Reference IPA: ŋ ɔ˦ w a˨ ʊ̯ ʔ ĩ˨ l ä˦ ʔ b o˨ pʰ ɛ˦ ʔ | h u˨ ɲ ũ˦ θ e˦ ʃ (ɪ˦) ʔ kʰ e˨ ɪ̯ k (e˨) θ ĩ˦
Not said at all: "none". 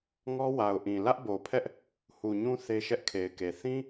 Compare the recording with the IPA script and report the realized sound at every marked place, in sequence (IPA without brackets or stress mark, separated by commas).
ɛ˦, e˨